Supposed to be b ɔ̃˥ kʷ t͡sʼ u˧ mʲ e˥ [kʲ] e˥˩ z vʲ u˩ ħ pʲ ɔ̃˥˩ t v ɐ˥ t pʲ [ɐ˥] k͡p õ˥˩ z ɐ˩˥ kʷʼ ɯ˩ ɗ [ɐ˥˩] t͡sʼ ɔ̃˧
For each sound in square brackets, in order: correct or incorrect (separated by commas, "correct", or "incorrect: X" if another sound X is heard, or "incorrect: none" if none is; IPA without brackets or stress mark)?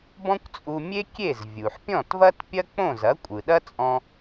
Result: correct, correct, incorrect: ɐ˥